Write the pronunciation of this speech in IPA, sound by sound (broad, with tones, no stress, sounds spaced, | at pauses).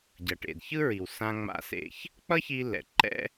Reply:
ɟ ʌ˩ ʈ ḛ˩ d ç ɯ˥ ɹ i˩ w s ã˧ ŋ͡m a̰˧ s ḛ˧ ç | k͡p ʌ˥ ç i˧ l ɛ̰˩ ǃ ɛ̰˥